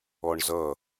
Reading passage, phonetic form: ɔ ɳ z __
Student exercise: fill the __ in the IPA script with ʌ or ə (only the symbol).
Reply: ʌ